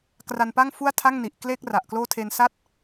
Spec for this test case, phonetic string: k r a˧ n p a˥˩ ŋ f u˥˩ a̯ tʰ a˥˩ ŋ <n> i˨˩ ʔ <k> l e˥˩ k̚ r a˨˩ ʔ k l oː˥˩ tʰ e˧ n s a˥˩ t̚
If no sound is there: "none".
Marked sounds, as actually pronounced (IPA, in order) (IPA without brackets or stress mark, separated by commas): n, k